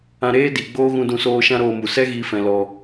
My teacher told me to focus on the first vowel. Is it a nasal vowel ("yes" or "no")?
yes